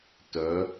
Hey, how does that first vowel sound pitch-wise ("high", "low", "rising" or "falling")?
rising